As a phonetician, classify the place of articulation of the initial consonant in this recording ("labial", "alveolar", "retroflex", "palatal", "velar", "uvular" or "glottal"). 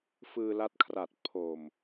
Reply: labial